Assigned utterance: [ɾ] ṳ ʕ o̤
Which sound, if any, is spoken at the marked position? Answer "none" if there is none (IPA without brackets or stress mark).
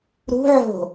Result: ɾ